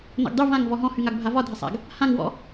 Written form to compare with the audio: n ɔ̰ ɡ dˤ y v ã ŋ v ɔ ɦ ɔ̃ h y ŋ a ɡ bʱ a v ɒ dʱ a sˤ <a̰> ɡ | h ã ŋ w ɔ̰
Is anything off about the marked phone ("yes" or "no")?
no